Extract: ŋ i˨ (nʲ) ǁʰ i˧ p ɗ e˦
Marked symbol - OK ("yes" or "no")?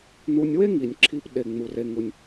yes